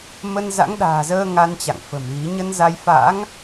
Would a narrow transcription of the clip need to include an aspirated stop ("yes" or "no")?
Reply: no